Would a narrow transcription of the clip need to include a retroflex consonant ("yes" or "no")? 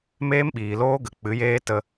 no